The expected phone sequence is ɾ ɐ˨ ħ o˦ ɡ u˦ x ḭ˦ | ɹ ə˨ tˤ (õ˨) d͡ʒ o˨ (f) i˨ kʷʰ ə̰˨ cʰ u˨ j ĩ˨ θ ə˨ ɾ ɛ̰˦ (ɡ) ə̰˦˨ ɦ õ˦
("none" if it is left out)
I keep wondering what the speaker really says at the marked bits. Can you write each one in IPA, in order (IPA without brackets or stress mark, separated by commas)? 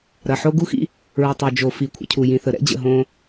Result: o˨, f, d͡ʑ